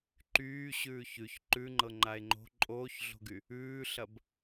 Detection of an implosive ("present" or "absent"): absent